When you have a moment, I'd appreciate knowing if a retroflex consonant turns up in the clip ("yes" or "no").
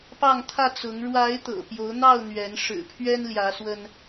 yes